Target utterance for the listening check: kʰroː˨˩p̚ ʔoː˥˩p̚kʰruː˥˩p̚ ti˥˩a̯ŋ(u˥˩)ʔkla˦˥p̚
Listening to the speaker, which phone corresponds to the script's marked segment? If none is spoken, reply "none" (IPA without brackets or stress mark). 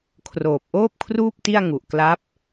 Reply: u˨˩